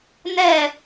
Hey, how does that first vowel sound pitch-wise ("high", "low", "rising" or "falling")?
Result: falling